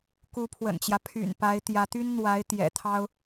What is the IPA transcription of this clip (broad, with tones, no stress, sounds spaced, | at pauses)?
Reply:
k u˧˥ pʰ w ə̰˨˩ n t͡ɕ j ä˦ pʰ y̰˨˩ n p a˧˥ ɪ̯ t̪ j ä˧˥ t̪ y˥ n n̪ w a˧˥ ɪ̯ t̪ j ɛ̰˨˩ t̪ʰ ɑ˥ ʊ̯